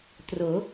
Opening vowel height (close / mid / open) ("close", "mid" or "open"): mid